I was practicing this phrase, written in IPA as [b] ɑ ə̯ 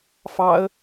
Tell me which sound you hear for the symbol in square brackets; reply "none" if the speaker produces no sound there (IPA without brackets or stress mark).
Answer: f